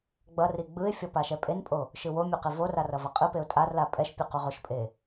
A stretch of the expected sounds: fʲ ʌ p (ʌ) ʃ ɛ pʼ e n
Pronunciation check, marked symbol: incorrect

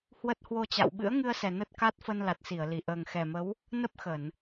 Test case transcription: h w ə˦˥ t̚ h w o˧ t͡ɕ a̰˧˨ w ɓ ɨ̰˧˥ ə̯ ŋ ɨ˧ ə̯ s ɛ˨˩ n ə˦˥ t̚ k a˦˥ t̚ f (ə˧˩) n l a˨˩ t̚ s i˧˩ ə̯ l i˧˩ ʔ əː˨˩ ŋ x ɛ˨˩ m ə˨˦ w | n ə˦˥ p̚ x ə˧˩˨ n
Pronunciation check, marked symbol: incorrect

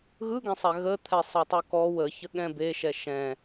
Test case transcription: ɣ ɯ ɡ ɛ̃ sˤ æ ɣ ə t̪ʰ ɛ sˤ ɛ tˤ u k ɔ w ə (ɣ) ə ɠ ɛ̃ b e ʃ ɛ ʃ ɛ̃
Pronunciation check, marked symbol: incorrect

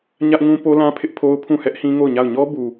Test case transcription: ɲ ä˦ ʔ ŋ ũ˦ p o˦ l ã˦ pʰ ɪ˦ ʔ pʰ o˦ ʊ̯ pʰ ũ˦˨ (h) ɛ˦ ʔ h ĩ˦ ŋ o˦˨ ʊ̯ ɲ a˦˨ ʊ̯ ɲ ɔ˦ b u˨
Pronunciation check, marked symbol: correct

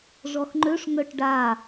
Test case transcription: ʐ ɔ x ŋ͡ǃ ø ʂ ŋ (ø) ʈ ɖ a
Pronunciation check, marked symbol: incorrect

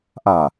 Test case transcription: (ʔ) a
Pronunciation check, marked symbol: correct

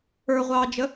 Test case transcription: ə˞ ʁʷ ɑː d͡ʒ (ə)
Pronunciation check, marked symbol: correct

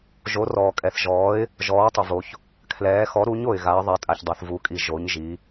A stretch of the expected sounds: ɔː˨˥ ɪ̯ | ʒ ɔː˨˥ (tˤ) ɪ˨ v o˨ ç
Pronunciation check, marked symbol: correct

